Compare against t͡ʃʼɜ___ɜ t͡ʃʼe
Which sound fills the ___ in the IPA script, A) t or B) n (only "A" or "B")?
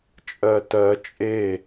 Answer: A